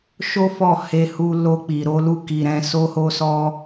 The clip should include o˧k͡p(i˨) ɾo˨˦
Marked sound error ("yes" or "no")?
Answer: no